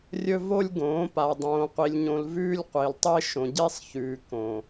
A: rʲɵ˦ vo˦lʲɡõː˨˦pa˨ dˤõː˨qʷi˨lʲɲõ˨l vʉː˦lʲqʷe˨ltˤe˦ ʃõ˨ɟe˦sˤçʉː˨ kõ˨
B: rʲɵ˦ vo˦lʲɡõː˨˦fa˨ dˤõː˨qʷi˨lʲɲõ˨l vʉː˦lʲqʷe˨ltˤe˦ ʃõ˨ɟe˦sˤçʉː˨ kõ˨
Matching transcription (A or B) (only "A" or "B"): A